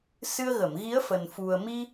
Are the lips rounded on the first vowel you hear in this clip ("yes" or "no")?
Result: no